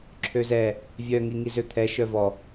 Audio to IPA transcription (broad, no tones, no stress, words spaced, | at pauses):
ǁʰøzɛ | vʲœ ŋiŋizøt̪ʰɛ ʃœvɔ